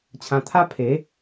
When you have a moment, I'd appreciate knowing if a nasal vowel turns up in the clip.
yes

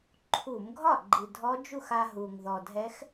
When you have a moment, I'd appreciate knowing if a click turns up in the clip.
yes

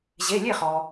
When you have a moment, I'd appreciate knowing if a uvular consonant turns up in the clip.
yes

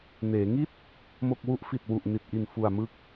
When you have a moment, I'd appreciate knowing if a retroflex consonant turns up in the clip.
no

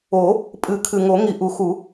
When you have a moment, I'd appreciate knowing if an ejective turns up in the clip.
yes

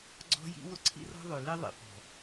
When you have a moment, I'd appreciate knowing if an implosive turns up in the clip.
no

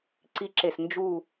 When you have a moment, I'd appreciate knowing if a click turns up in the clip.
yes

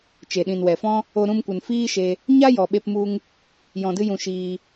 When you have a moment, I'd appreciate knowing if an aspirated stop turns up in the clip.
no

